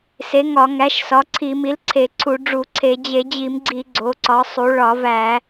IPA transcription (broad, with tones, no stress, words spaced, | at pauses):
se˩˥ŋɒ˧˩˧ŋæ˩˥ʃ sɒ˩˥ǀʰi˧˩˧mi˩˥lǀʰe˧˩˧ ǀʰu˧˩˧ɖ͡ʐu˧˩˧ǀʰe˧˩˧ d͡ʑe˧˩˧d͡ʑi˧˩˧mɡ͡ǀi˧˩˧ ɡ͡ǀo˩˥ǀɒ˩˥sˤu˩˥ ɭɒ˧˩˧væ˧˩˧